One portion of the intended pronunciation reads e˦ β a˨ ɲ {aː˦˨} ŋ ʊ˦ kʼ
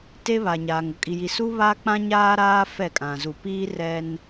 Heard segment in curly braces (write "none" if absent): aː˨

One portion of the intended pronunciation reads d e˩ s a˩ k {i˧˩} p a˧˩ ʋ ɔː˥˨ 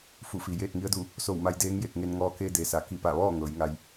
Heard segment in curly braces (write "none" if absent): i˧˩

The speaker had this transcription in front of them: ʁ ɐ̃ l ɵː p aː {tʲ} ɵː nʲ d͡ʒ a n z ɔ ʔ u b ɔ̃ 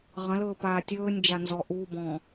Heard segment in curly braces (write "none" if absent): tʲ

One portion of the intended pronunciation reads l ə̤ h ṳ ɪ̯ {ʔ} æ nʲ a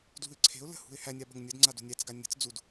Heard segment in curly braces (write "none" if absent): h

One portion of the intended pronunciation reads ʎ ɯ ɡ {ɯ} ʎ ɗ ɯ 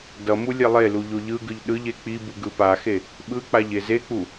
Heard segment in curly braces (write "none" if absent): ɯ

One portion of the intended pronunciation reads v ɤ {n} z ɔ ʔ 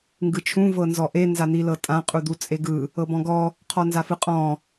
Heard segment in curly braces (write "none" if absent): n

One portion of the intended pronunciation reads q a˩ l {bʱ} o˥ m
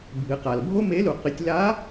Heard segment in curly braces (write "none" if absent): bʱ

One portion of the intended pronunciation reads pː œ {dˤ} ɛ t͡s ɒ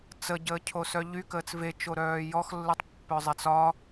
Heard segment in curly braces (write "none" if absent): zˤ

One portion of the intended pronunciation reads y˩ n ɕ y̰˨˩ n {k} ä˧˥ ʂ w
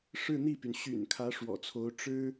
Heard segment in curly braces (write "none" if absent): kʰ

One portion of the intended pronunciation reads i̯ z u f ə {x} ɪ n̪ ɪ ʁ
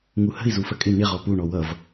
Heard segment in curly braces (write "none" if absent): kʼ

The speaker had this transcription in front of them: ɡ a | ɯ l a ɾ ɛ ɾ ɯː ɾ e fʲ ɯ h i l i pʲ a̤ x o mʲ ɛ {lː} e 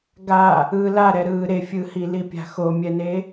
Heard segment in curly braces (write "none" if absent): n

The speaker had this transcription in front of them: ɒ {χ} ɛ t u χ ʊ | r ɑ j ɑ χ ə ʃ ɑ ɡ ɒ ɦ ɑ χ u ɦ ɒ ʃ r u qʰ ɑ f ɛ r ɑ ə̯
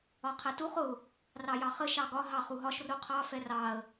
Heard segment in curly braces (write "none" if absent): qʰ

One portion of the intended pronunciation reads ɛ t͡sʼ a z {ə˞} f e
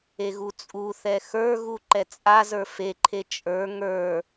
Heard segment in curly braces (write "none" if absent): ə˞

